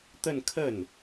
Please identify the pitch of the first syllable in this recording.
falling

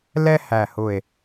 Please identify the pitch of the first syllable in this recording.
high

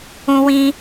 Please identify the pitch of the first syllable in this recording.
high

